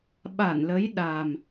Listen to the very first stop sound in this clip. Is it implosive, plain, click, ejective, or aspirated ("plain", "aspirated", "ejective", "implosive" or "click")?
implosive